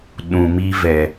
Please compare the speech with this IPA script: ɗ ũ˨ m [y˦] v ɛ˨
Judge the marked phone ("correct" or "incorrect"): incorrect